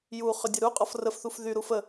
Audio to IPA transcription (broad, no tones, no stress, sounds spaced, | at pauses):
j u χ ʏ dʲ ə ɾ u qʼ ɔ f r ə f θ u f ð y ɾ u f ə